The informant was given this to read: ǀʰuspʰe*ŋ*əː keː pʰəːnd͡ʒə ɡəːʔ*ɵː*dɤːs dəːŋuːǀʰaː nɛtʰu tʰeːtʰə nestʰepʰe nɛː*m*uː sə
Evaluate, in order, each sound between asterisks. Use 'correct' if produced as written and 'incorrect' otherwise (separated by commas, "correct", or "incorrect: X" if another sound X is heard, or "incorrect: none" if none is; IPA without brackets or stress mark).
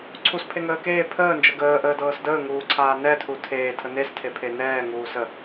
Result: correct, incorrect: əː, incorrect: ŋ